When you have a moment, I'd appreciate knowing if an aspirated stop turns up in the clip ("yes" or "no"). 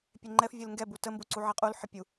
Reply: no